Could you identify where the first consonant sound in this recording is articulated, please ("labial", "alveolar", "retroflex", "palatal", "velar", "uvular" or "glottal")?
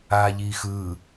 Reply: palatal